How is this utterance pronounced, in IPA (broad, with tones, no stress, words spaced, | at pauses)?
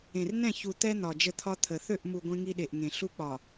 ẽ˨rnɛ̃˦˨çu˨ t̪ɛ˦n̪ɒ˨ d͡ʒə˦˨t̪ʰɒ˦t̪ʰə˨ θø˦˨ʔmu˨ ɡʷẽ˦ŋi˦ɗe˨ʔŋẽ˨ ɬu˦k͡pɒ˨